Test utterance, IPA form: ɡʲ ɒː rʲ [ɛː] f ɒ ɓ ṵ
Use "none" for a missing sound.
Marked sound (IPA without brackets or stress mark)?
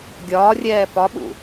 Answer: ɛː